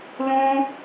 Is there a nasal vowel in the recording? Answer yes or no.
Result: yes